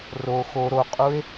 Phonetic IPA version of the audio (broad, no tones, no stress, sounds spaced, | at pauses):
r o x o ɾ o qʼ u e̯